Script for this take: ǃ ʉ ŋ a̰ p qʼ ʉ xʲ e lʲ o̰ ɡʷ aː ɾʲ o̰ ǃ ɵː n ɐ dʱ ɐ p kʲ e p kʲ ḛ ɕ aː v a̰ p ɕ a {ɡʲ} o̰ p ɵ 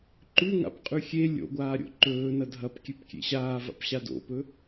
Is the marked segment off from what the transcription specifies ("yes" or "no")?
yes